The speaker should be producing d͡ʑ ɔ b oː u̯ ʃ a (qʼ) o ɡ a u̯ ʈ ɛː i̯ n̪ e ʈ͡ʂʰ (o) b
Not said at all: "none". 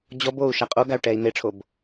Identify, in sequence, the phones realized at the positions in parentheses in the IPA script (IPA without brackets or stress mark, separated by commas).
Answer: qʼ, o